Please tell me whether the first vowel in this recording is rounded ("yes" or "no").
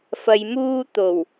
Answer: no